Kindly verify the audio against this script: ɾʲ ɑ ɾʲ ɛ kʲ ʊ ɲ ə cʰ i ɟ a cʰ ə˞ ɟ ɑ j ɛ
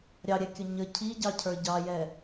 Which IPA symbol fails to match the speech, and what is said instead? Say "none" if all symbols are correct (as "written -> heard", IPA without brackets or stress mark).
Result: a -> ɑ